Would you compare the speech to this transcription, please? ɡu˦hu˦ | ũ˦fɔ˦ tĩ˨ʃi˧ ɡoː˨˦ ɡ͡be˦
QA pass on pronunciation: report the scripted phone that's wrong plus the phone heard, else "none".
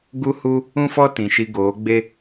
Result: none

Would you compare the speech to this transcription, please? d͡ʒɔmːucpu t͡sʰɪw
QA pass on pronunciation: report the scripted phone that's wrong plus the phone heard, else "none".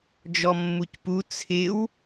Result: none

